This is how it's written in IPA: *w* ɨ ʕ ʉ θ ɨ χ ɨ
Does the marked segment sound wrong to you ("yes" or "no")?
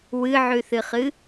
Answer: no